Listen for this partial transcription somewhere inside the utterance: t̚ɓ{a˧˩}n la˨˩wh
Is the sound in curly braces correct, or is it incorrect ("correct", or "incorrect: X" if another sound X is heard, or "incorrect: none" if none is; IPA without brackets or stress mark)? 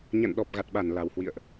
correct